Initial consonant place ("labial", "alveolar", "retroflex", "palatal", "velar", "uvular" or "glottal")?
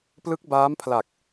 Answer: labial